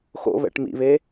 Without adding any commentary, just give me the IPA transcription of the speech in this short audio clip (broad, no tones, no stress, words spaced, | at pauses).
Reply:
xo̰βɛ̰ʈ mḭβe